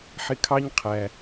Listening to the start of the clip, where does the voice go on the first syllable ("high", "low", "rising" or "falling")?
high